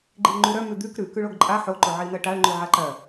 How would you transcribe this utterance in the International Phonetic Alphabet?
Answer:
ɡ͡ǃ i ʊ̯ ŋ͡ǃ ʉ ɾ œ m ʉ d̪ ʉ k ɾ ʉ k ʉ ɭ o ɡ ǃʼ a ħ o ǃ o ʕ i n̪ ɜ ʈ a ɭ ŋ͡ǃ ʉ ʕ a ǃ ɜ

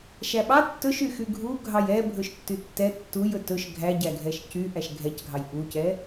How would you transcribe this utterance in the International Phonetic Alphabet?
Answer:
ʃ æ ɓ ɑ tː ɵ ʃ y x y ɡʱ u ɡʱ ɑ j ɛ bʱ ɵ ʃ tː y tː ɛ tː u j ɵ t ɵ ʃ ɡʱ æ ɟ æ ɡʱ ɛ ʃ c y ʔ æ ʃ ɡʱ ɛ c ɡʱ ɑ j ʔ u c ɛ

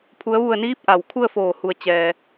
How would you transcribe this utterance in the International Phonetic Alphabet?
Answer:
pʰ u˩˧ ə̯ ʋ u˧˩ ə̯ n iː˧˥ p̚ ʔ a˩ w kʰ u˥˨ ə̯ f oː˧˩ h u˧˩ ə̯ t͡ɕ ɛː˩

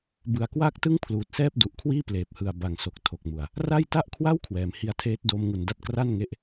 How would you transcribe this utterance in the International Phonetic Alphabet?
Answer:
b ɯ˨˩ a̯ k w aː˥˩ k̚ t ɯ˥˩ ŋ pʰ l uː˨˩ t̚ s ɛː˥˩ p̚ d u˨˩ ʔ kʰ w iː˥˩ p l eː˨˩ p̚ h ɯ˨˩ a̯ b a˨˩ ŋ s o˨˩ k̚ tʰ o˨˩ k̚ m u˨˩ a̯ | r a˥˩ j t a˥˩ ʔ kʰ w a˥˩ w kʰ w ɛː˩˦ m h i˧ a̯ tʰ eː˦˥ t̚ d oː˧ m ŋ u˨˩ n d a˦˥ t̚ k r a˥˩ n ŋ e˦˥ ʔ

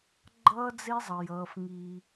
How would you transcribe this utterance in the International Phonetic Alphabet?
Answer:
ɡ͡ǃ ʌː˦ d͡z e˦ zˤ ʌ˨ j ʌː˨˦ f ŋ i˦

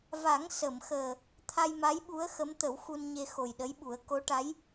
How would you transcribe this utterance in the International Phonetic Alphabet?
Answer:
v a˨˩˦ ŋ s ə˨˩˨ m x əː˨˩ | t̪ʰ a˧ j m a˧˥ j ɓ u˧˥ ə̯ x ə˧˥ m t̪ ə˨˩˦ w x u˧ n ɲ e˧ x o˨˩ j ɗ ə˧˥ j ɓ u˨˩˦ ə̯ k o˧˥ ʈ a˧˥ j

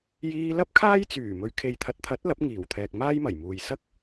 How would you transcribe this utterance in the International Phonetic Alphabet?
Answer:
j iː˧ l ɐ˥ p̚ kʰ aː˥ j t͡s yː˨˩ m ɵ˨ ɥ kʰ e˨ j t̪ʰ ɐ˨˥ t̚ t̪ʰ ɐ˨˥ t̚ l ɐ˨˥ p̚ ŋ iː˨˩ w t̪ʰ ɛː˨ k̚ m aː˥ j m ɐ˨˩ j m uː˨ j s ɐ˥ k̚

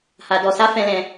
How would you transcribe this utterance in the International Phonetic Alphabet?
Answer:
h a˧ d ɔ˧ s a˦ f ɛ̃˦ l ɛ̃˦

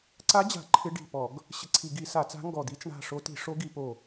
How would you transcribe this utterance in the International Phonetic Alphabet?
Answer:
ǀ a˧˥ d͡ʑ a̤˧˩˧ ǃʰ ɪ˧˥ ɖ i̤˧˩ p ɔ˧˩˧ ɡ | ɕ ɪ˧˩ ǀʰ i˧˩˧ ɡ i˧˩˧ s a˧˩˧ t͡s a̤˧˥ ŋ ɡ ɔ˧˩ d̪ i˧˥ t͡s ɳ a̤˧˩ ʂ o˧˥ t i̤˧˩˧ ʂ o˧˥ ɡ i˧˩˧ p o˧˩

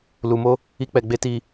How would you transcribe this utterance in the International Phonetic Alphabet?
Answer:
l u˧ m o˦ | i˦ k͡p ɛ˧ ɡ͡b e˦ t i˧

